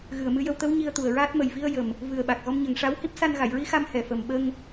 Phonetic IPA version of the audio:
ɣ ɨ˨˩ ə̯ m ɨ˧ j ə˧ w t̪ ə˧˥ w ɲ i˧ ə̯ t̪ u˨˩ ə̯ ɹ aː˦˥ t̚ m ə˨˩ j v i˧ ə̯ j ə˨˩ m | v ɨ˨˩ ə̯ ɓ a˨˩ k̚ ɣ ɔ˧ m ɲ ə˨˩ ŋ ʂ a˧˥ w h i˦˥ p̚ s a˧ n ɣ a˨˩˨ j ɹ i˧˥ x a˧ m h ɛ˨˩ f ə˨˩ m ɓ ə˧ ŋ

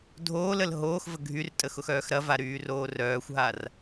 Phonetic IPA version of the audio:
dʱ oː l ə l ɦ oː x v ə ɡʱ y r tʼ ə x ʊ x œː x ɾ ɐ v a ɾ yː r oː r œː xʷ ɦ a r

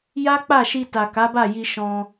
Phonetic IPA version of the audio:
j a˦ k͡p a˦˨ ʃ i˧ t a˨ k a˨˦ b a˦˨ j i˧ ʃ ɔ̃˧

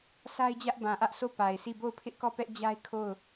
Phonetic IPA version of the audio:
s a˦ ɪ̯ d͡ʑ ä˦ ʔ b ã˨ ʔ ä˦ ʔ s o˦˨ p a˨ ɪ̯ s i˦˨ b o˦˨ ʊ̯ pʰ ɪ˦ ʔ k ɔ˦˨ p ɛ˦ ʔ d͡ʑ a˦ ɪ̯ kʰ o˦˨ ʊ̯

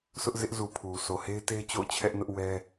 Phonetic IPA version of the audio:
sʰ ʊ˦ ʔ z ɪ˦ ʔ z u˨ pʰ u˨ s o˨ h e˦ ɪ̯ t e˦ ɪ̯ t͡ɕ o̰˦˨ ʊ̯ t͡ɕʰ ɛ˦ ʔ n ʊ˦ ʔ w ɛ˦

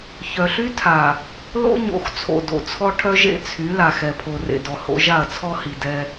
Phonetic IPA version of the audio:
ç œ˨ ɬ y˦ tʰ a˨ | l o̰˦ ɲ o̰˨˦ x t͡sʰ o̰˨ d o̰˨ t͡sʰ ɔ˦ ʈʰ œ˦ ʒ ḛ˦ t͡sʰ y˨˦ l a˨ x ɛ˨ pʰ o˨ r ḛ˨ d ɔ˨ h o̰˨˦ ʒ a˦˨ ɐ̯ t͡sʰ ɔ˦ h i˨ d ɛ˦

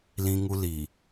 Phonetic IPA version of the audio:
l ĩ˦ ŋ u˦ l i˨

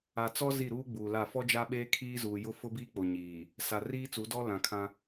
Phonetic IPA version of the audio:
a˨ t͡s ɔ˦ z i˦˨ ɾ uː˦ ɡ͡b uː˨ l a˦˨ f ɔ˦ d͡ʒ a˦ ɓ eː˦ kʰ iː˦ z uː˨ j ʊ˦ f ʊ˦ b iː˦ k͡p o˨ ɲ iː˨ | s a˨ r iː˦ t͡s u˨˦ d ɔ˦ l ã˨ kʰ ã˦

